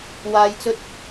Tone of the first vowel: low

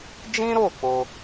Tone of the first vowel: high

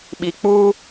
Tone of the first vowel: low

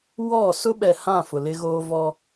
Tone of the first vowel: falling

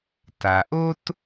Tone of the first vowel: low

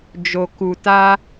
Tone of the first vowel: low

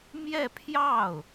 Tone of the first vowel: falling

